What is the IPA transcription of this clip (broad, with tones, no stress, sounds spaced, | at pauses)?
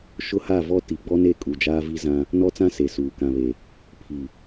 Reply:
ʃ ʊ˦ h a˦˨ v ɔ˦ t i˨˦ ɡ͡b ɔ˦ n e˦˨ kʼ u˨ d͡ʒ aː˦ v i˦ z ã˦ | n ɔ˦ t͡s ã˦ s e˨ s uː˨ k ã˨ β e˨ | pʰ i˨